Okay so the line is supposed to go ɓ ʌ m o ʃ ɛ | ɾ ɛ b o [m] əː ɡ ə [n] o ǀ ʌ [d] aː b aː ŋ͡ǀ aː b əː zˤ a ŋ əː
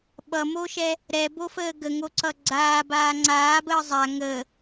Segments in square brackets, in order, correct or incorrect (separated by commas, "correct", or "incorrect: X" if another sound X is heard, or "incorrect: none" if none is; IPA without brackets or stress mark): incorrect: f, incorrect: ŋ, incorrect: ɡ͡ǀ